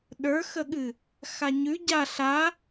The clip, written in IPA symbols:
ɗ ə˞ x ə ɠ ɨ | x a ɲ ʉ ɟ a ɬ a

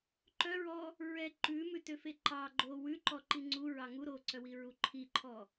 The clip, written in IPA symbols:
ǃ œ ɹ ɔ | ɹ ɛ ǃ ʉ m ʉ t ø f e ǃ ɑ ɡ͡ǃ o w ʉ ǃ ɔ ǃ i ŋ͡ǀ u ɹ ɑ ŋ u ɾ o ǀ œ w i ɹ u ǃʰ i ǃʰ ɔ

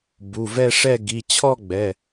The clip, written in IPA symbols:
b u˩˧˩ v ɛ˥˧ ʂ ɛ˥˧ ɡ i˩˧˩ t͡ɕʰ ɔ˥˧ ɡ͡b ɛ˩˧˩

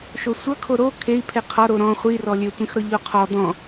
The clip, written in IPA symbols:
ʃ o sʷ ʌ kʰ o ɾ o kʰ e i̯ pʰ e qʰ ɒ ɾ o ɾ ɔ̃ χʷ i r ɔ lʲ ø tʷ ĩ x ɾ ɔ ʎ o qʰ ɔ d̪ ɔ̃

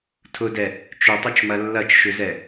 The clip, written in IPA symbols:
tʰ ʊ d ɛ | t͡ʃ ʏ tˤ ʊ t͡ʃ m ɐ lː ɐ t͡ʃ ʃ ʏ z ɛ

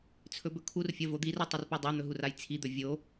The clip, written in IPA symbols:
t͡sʰ ɵ b ɵ kʰ u r fʲ ɐ v o d̪ i r o tˤ ɵ r p i dˤ e n̪ ɵ ɦ u r a j t͡sʰ i d̪ ɵ vʲ o

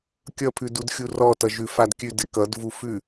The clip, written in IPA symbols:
kʲ ʌ pʰ ʉ d u d xʲ u r ɔ t ʌ ʒ ʉ f a d kʲ ʉ d ɪ k ʌ d v u f ʉ

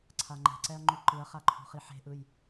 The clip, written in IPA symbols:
ǀʰ a ŋ͡ǃ ɛ̤ ǀ ɛ ɐ̯ ŋ͡ǃ u ǃ ɯ ɐ̯ χ a ǃʰ ṳ χ i ħ e̤ ʔ ɯ j

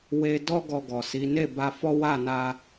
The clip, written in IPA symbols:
w e˧ d ɔ˦ ɡ ɔ˧ ɡ ɔ˨ s i˨˦ n e˦˨ b a˧ f ɔ˦ w a˦˨ n a˧

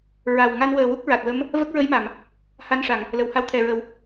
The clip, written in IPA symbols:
ɹ a˨˩ w ŋ a˧ n w əː˨˩ w u˦˥ k̚ ɹ a˨˩ t̚ w ə˧˥ m | v ə˦˥ k̚ ɹ ə˧˥ j m a˨˩˨ m | h a˧ n ʂ a˨˩˨ ŋ | l ə˨˩˨ w h a˧ w t̪ʰ ɛ˨˩ ɹ ə˨˩˦ w

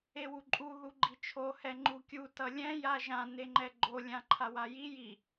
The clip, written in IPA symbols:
e w u ǃʼ u ð u ɡ͡ǃ i t͡ʃʰ o h ɛ ŋ͡ǃ u kʲ u t ʌ lʲ ɛ̃ j a ʒ ã n e ŋ͡ǃ ɛ ɡ͡ǃ o lʲ ã ǃʰ a w a j i j i

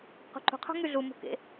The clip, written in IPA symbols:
q ṳ ǃ ṳ qʰ o̤ ŋ y ɮ u m ṳ k ḛ

